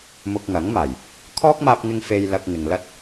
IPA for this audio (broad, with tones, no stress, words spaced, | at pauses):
mʊ˧k̚ŋɐ˨˥ŋmaː˨˩j | kʰɔː˥k̚maː˧p̚ŋɪ˧ŋ fe˧jlɐ˧k̚ ŋɪ˨ŋlɐ˥t̚